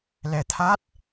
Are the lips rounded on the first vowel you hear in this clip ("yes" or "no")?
no